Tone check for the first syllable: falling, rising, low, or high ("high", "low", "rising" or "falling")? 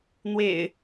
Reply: low